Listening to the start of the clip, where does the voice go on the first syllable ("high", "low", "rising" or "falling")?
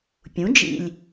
rising